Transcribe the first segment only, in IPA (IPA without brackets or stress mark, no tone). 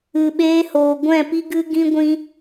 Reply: ɨ